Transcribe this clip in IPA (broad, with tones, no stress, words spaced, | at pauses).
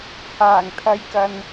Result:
haː˨˩ŋt̪ʰɐ˨˧jkɐ˨n